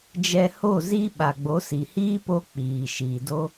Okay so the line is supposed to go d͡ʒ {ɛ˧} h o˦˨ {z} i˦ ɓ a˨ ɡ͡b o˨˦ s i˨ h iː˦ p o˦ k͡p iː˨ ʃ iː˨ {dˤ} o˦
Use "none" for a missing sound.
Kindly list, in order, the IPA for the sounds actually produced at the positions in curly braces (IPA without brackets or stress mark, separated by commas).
ɛ˧, z, d